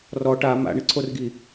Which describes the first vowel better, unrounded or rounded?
rounded